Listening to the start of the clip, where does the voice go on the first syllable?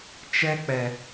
high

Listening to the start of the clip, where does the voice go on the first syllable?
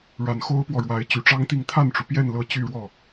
low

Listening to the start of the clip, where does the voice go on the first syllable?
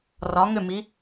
rising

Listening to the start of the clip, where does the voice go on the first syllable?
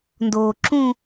low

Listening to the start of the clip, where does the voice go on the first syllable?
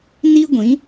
high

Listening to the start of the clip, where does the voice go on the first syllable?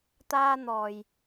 high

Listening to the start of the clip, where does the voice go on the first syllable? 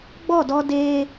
falling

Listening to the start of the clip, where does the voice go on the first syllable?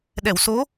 low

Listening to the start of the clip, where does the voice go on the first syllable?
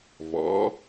rising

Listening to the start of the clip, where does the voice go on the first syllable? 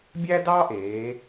high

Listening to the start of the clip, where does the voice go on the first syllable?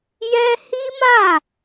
high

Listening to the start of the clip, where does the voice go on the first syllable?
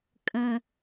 low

